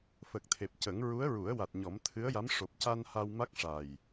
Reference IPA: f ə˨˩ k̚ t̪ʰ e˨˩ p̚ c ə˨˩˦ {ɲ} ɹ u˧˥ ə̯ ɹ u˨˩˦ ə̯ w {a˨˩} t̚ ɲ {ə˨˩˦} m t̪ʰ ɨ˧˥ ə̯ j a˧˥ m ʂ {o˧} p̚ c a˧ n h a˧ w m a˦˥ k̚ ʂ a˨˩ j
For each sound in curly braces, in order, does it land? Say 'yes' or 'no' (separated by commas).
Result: no, yes, no, no